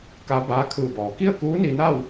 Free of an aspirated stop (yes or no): no